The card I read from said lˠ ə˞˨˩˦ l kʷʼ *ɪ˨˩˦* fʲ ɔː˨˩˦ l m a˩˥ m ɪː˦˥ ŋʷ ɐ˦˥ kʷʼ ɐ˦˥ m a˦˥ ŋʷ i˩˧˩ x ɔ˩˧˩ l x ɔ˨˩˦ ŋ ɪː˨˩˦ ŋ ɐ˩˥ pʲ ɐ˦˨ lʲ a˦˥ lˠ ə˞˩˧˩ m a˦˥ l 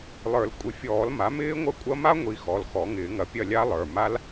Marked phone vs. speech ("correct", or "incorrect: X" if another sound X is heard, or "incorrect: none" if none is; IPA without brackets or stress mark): correct